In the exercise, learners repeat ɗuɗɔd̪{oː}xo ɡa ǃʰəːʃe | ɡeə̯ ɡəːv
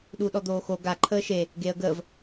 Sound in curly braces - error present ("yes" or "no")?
no